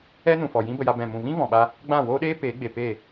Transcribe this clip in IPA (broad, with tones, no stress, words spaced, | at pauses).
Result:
ɛ˦nũ˨fɔ˨ jĩ˦bə˧ja˧ bɛ̃˨mũ˨vĩ˦ vɔ̃˨ɓa˧ | ɡ͡bã˦˨woː˦ɗeː˦ peː˨˦ɡ͡be˨ pe˦˨